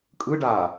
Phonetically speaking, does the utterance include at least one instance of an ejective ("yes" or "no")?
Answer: yes